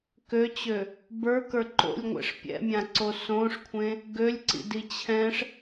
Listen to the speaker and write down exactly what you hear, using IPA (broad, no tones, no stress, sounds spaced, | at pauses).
k ø t͡ɕ ø | b ə˞ k ə˞ ǃ o̰ lʲ ŋʷ ɛ̰ ʂ pʲ ɛ̰ mʲ ã ǀ o s õ ʂ kʷʰ ẽ | ɡ ø lʲ ǀ ḭ d i t͡ɕʰ ɛ̃ ʂ